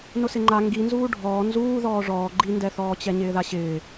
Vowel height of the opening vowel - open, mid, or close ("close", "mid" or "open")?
close